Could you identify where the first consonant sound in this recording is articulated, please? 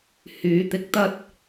glottal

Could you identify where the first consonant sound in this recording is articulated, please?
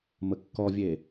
labial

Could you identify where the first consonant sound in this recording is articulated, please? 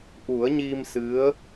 glottal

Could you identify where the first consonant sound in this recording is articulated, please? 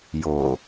palatal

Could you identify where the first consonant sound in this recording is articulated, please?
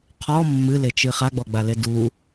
uvular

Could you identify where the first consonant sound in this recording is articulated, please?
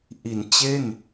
glottal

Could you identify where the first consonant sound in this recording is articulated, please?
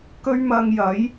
velar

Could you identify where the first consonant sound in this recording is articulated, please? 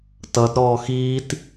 alveolar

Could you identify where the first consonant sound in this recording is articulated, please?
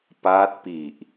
labial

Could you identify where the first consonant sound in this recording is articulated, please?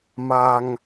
labial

